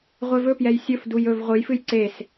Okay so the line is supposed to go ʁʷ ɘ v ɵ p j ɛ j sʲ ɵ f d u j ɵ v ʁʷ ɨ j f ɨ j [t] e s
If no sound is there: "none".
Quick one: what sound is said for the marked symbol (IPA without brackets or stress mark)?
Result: ǀ